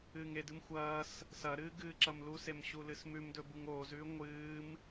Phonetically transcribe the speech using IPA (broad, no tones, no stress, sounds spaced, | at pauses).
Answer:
ɨː ŋ e d ɨ m xʷ ɐː s | s ɐ ɾ ɨː ɡ ɨː ǁ ɐ m l u s e m ɕ u l ɨ s m ʉ m d ɵ b u ŋ oː z ʉː ŋʷ ɨː m